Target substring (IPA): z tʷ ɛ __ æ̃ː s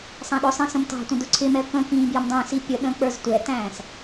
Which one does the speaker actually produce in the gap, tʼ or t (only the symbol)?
t